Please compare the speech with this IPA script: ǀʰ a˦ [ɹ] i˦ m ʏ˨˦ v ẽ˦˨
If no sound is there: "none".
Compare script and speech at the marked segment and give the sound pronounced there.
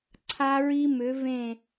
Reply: ɹ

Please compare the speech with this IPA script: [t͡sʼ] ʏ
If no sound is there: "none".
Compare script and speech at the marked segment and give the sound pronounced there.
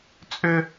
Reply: t͡sʼ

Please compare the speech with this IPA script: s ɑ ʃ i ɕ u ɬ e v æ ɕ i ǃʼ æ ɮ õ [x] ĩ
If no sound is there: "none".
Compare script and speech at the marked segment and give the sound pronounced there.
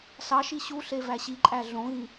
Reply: ɣ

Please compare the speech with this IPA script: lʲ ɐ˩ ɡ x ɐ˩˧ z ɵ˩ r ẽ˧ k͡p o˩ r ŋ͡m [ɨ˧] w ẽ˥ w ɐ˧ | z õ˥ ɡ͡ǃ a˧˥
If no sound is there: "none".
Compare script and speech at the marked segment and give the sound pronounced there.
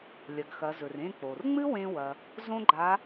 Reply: ɨ˥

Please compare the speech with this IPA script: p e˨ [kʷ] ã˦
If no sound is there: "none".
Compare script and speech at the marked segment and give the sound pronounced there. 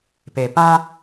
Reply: p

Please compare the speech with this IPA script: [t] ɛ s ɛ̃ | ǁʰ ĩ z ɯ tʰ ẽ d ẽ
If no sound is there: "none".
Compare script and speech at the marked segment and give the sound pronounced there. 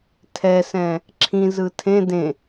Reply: tʰ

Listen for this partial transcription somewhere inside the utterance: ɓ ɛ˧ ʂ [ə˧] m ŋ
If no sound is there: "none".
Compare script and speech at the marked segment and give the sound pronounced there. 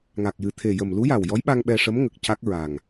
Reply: ə˧˥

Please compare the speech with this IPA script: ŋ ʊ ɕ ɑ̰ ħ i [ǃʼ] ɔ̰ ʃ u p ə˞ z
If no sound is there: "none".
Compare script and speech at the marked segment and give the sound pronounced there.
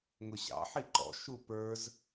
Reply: ǃ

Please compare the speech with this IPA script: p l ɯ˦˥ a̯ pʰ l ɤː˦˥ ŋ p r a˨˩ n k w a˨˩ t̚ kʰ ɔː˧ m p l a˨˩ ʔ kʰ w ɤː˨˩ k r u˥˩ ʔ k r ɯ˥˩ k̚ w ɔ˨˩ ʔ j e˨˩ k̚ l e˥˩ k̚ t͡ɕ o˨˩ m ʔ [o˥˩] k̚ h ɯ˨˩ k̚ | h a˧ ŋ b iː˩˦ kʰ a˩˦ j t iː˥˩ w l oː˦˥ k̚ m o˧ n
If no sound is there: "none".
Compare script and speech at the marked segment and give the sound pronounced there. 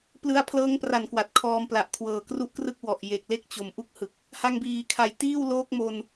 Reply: u˥˩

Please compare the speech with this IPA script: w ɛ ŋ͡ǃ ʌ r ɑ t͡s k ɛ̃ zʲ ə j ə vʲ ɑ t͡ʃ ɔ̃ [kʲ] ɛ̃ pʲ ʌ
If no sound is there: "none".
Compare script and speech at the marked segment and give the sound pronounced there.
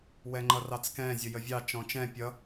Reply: t͡ʃ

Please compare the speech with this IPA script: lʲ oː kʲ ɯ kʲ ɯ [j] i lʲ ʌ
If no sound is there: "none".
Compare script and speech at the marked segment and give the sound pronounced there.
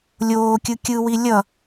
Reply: w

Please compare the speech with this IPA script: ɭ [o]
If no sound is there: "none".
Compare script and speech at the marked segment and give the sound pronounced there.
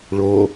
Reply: o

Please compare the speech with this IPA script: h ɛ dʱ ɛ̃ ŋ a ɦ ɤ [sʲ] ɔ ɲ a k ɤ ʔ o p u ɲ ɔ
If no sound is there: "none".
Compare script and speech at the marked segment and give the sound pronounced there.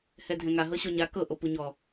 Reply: ɕ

